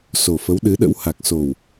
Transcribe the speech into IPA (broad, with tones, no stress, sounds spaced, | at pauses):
s o˨˩ f ə˨˦ w ɗ ɨ˨˦ ɗ ə̰˧˥ w h a˨˩ k̚ s o˨˩ w